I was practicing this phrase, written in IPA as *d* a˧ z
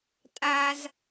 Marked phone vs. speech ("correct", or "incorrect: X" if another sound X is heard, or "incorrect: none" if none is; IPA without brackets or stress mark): incorrect: tʼ